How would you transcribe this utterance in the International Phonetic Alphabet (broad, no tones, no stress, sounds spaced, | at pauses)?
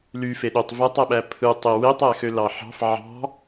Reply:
l y f e ɗ ø tˤ v æ tˤ æ ɓ æ pʰ ɯ tˤ e w e tˤ æ x ø l ɑ ħ ɑ̤ f ʕ ɑ̤